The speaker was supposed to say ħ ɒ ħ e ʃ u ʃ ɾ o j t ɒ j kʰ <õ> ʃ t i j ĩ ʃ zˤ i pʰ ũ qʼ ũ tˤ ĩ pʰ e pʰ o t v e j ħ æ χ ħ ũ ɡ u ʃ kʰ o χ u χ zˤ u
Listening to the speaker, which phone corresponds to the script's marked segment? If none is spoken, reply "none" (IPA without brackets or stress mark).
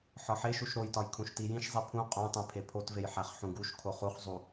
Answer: ũ